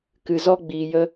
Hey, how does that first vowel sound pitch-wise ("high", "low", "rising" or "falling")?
low